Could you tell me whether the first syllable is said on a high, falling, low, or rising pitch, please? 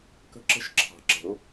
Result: high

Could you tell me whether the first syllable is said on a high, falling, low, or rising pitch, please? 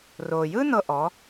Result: low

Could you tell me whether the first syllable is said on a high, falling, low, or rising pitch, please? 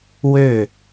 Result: falling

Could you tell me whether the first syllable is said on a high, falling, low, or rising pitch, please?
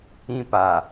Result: high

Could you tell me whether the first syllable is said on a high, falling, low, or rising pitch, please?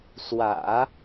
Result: low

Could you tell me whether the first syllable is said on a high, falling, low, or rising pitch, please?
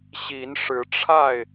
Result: rising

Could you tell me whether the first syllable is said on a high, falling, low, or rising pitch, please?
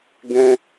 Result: high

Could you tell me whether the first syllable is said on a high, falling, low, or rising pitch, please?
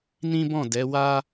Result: high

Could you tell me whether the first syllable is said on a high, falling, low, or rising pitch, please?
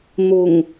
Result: low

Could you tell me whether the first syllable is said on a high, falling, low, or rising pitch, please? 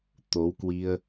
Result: rising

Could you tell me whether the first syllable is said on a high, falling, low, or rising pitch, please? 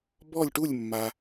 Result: falling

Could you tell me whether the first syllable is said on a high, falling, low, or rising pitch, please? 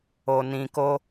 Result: low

